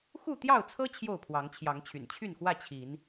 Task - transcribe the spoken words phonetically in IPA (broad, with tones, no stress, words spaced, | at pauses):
xu˥˨t̪jɑ˥˨ʊ̯t͡sʰɤ˦ t͡ɕʰjo˥˨ʊ̯pʰwɑ˨˦ŋt͡ɕʰjɑ˨˦ŋt͡ɕʰy̰˨˩n t͡ɕʰy˥˨nxwä˥˨ t͡ɕʰi˨˦n